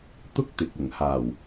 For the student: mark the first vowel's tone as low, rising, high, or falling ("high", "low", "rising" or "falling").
high